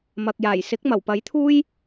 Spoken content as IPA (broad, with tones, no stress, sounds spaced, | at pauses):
m ɐ˨ k̚ j aː˨˩ j s ɪ˨˥ k̚ m ɐ˨˩ w p ɐ˨˥ j t̪ʰ uː˥ j